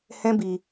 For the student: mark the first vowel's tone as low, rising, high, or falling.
high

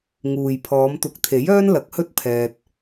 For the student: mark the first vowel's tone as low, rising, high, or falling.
low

